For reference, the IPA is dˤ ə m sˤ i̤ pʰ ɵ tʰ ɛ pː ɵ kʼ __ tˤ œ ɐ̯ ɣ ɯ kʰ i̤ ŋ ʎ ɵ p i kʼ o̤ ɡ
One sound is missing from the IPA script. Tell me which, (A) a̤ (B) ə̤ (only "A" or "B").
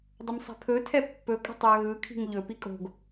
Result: B